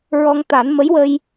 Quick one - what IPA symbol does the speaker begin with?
ɹ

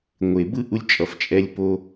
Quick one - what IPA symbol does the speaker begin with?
ŋʷ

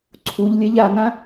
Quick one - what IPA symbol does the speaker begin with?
ǀʰ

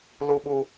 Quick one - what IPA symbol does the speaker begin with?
l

